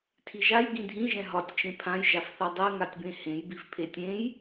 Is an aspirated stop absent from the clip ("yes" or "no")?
no